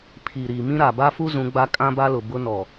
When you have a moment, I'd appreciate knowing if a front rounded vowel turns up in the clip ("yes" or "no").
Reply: no